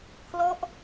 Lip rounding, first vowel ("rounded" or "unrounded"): rounded